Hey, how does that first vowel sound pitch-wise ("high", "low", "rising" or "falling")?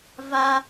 high